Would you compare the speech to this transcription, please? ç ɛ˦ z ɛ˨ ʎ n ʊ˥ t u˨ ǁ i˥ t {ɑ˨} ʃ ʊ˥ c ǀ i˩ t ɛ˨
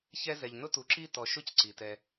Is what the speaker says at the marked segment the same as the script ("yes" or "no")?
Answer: no